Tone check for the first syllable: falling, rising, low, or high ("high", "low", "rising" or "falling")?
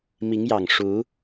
rising